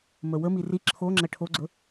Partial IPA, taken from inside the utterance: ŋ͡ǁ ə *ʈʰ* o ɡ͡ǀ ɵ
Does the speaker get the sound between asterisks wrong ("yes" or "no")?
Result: no